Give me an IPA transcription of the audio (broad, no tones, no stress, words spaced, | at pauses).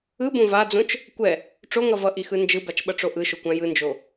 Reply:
ɯbõ vad͡zõt͡ʃ | kʷɛ | ʈ͡ʂoŋʌ vʌʔixɯ nd͡ʒɯbat͡ʃɓʌʈ͡ʂo ʔɯʃokʷã jɯnd͡ʒo